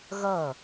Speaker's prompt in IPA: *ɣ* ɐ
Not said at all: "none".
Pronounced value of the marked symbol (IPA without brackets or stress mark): ɣ